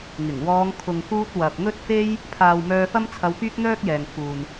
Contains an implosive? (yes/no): no